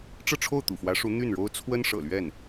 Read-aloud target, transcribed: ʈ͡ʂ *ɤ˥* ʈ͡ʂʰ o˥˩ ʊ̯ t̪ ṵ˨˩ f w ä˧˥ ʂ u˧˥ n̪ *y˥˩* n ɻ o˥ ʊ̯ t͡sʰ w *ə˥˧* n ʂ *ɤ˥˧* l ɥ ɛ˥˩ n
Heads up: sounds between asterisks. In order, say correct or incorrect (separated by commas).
incorrect, correct, incorrect, incorrect